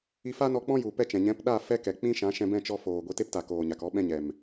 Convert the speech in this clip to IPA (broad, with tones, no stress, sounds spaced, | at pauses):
i˧ f a˦ n ɔ˧ k͡p ɔ̃˦ j u˨ p ɛ˦ t͡ʃ ɛ̃˨ ɲ ɛ̃˨˦ p ɗ a˦˨ f ɛ˦ k ɛ˨ k͡p ĩ˦ ʃ ã˨˦ ʃ ɛ̃˧ b ɛ̃˦˨ t͡ʃ ɔ˧ f oː˨ ɡʷ e˧ t e˦ p t a˨ k oː˨ ɲ a˨ k ɔ˦ ɓ ɛ̃˦ ɲ ɛ˨ m